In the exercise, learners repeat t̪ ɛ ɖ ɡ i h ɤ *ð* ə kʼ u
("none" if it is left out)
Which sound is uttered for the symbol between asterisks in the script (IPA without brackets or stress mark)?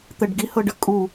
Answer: ɖ